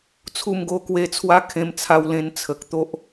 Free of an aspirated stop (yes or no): no